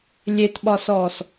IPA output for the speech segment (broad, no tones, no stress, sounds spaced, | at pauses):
lʲ e t ɓ ɒ s ɔː s